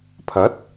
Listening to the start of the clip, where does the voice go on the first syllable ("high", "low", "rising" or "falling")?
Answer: rising